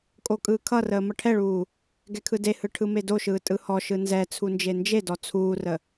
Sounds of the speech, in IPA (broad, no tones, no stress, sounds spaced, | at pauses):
kʼ o kʼ ɯː kʰ ʌ r əː m ʌ ʈʰ ɛ ɭ uː | ɡ ɛ kʰ ɯ d e h ɯ ʈʰ ɯ m e d o ʃ ɯː tʼ ɯ h ɔ ʃ ɯ n z ɛ t͡sʰ u n d͡ʒ e n d͡ʒ e d ɔ t͡sʰ uː r ə